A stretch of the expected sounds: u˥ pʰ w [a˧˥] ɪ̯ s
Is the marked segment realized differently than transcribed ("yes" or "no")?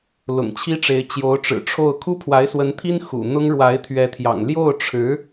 no